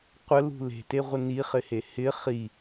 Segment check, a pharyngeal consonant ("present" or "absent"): absent